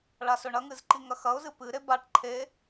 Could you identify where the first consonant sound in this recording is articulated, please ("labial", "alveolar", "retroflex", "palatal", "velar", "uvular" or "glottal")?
retroflex